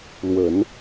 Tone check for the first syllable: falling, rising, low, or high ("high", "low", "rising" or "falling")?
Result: low